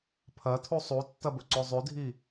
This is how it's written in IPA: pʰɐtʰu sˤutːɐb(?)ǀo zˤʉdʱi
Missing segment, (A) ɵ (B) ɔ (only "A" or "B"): A